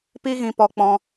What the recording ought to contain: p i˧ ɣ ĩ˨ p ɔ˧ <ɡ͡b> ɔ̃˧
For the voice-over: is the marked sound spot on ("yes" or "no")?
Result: no